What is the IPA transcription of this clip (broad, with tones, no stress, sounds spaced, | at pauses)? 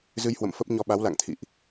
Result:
z ɨ˧ j h w ə̰˧˨ m f ə˦˥ p̚ ɲ ɔ˧ ɓ a˨˦ w l a̰˧˨ ŋ t̪ʰ ḭ˧˨ ʔ